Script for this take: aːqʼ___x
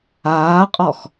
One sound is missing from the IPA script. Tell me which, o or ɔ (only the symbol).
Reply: ɔ